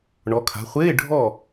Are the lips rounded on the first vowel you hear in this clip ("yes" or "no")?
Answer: yes